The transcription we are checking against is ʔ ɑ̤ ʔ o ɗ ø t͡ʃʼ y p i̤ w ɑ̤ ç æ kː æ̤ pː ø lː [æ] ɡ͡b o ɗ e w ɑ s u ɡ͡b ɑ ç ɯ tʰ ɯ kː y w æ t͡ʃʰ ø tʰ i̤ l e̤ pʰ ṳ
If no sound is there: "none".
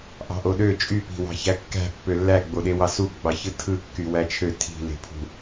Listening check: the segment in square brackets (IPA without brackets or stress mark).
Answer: æ